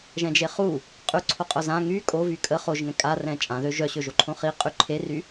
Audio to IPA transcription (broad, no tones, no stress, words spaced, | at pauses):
ʒɛ̃d͡ʒeχu | qʼyǀʰoqʼœ zã ŋy kʼovy kʼə χoʒŋɛ̃ kʼa rɛ̃t͡ʃʼãðø ʒœɕøʒo ǃʰõχi qʼyǃʰery